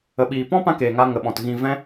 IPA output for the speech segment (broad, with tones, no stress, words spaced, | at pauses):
ə˨ɓiː˨pɔ̃˦ pã˦keː˨ŋa˧ ŋə˨ɓɔ̃˨t ɣĩ˨vɛ̃˧